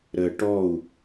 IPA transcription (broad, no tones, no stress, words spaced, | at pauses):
ɾə ʈɔu̯